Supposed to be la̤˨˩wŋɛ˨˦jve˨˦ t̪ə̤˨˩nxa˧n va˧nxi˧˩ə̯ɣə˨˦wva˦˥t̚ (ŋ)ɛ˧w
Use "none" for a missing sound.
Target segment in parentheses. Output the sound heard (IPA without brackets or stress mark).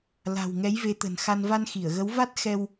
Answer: x